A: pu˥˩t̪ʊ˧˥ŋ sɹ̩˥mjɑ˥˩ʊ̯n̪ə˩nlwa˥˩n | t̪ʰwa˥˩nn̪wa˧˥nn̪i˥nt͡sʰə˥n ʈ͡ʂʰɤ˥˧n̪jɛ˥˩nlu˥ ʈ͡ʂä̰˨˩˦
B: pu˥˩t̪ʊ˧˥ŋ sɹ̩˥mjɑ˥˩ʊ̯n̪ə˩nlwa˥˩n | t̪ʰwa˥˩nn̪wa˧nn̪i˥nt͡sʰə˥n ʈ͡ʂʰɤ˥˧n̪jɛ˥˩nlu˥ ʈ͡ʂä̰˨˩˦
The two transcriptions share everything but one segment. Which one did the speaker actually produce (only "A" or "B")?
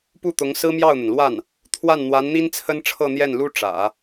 A